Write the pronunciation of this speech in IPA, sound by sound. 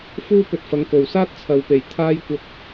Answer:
f uː˥ p ɵ˧ t̚ f ɐ˨˧ ŋ k o˨ w s aː˥ t̚ t͡sʰ ɐ˨˧ w p e˨˩ j t̪ʰ aː˧ j kʷ ɐ˨˥ k̚

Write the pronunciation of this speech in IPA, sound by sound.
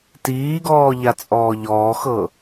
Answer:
t iː ɡ ɔː ʎ a t͡sʼ ɔː ʎ ɔː x ɤ

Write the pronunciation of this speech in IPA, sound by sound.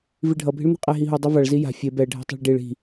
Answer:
v i ɖʱ ʌ bʱ i̤ ɭ n̪ e̤ qʼ ɛ ɦ i ɦ u dˤ ʌ v a ɭ z i j a̤ fʲ e b ɛ ɖʱ ɛ̤ tˤ a̤ ɭ ɖ i ɭ i̤

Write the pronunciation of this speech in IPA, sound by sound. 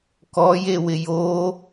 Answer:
k ɔ j e w ɪ j o

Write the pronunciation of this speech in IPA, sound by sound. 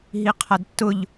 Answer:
ɦ i qʰ a d tː ʊ ʎ

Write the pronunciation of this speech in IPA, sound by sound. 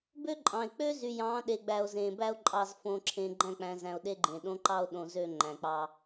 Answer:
b ø˦ ǃʼ ɑ̃˨ e̯ k͡p ø˦ z y˨ j ɑ̃ː˨˦ ɗ e˨ ɡ͡b æ˨ o̯ z ẽː˨ b æ˦ o̯ ǃʼ ɑ˨ z f õ˨ ǁʰ ẽ˨ ɡ͡ǃ æ̃˦˨ k͡p æ̃˨ z æ̃˨ o̯ ɗ e˦ ɡ͡ǃ ẽ˨ ɗ õ˦ ǃ ɑ˦ o̯ ɗ õ˨ z ø˦˨ ŋ͡ǃ æ̃˨ k͡p ɑ˦

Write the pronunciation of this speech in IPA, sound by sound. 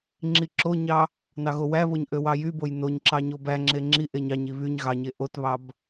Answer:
ŋ͡ǁ i ǁ o ɲ ɑ | n ɑ ɣ o w æ β o ɲ ʔ ø w ɑ j y b o j n o ɲ ǁ ɑ ɲ o b æ ŋ͡ǁ e ŋ͡ǁ i ʔ e ɲ ɑ ɲ i β y ɲ ɣ ɑ ɲ e ʔ o t β ɑ b

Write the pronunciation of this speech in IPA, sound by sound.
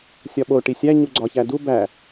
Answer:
sʲ ɒ ɓ o ʈ i sʲ æ ɲ u ɡ͡ǀ ɒ ç æ d u b æ

